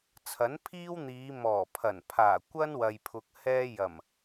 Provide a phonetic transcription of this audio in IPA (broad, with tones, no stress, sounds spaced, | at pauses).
t͡sʰ ɐ˨˥ n pʰ iː˥ w n̪ iː˨˧ m ɔː˨˩ pʰ ɐ˨˩ n pʰ aː˨˩ kʷ ɐ˥ n w ɐ˨ j pʰ ʊ˨ k̚ h ɛː˥ j ɐ˨˩ m